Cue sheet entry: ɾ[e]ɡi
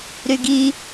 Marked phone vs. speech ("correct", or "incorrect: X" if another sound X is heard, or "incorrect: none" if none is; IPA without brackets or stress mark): incorrect: y